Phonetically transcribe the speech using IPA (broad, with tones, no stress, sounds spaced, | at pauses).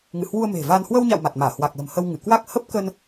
ŋ ɨ̰˧˨ h w u˧ ə̯ m e̤˨˩ v aː˧ n h w ə˧ w ɲ a̰˧˨ w m a˨˩ t̚ m aː˧˩ h w a˨˩ k̚ l ə̤˨˩ m h ə˧ w ŋ ɨ˧˩ k w a˦˥ k̚ h ə˦˥ p̚ k ə˧ n